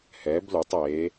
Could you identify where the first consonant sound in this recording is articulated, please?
glottal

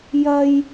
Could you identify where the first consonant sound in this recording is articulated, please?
palatal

